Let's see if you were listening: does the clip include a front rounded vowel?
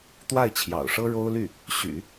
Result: yes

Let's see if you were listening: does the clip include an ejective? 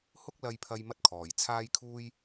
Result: no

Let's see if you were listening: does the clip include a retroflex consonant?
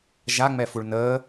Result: yes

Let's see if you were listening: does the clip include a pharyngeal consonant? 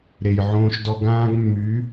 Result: yes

